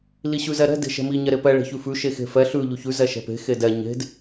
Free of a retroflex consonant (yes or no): no